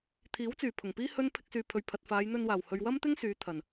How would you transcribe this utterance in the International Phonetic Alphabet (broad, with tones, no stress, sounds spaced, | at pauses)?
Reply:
t̪ʰ iː˨˥ w t͡s yː˨˩ pʰ ʊ˨˩ ŋ p iː˥ h ɵ˥ n pʰ ɪ˧ k̚ s yː˨ pʰ ɵ˨ ɥ pʰ ɐ˨ t̚ f aː˨˧ j n̪ ɵ˧ n w aː˨˩ w h ɵ˨ ɥ w ɐ˥ m t̪ ɪ˥ ŋ s yː˨˧ t̪ʰ ɐ˨˩ n